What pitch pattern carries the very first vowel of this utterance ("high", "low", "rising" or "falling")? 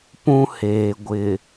high